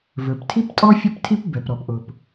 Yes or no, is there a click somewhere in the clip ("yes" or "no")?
no